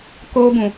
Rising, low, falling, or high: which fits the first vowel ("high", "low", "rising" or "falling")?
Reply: high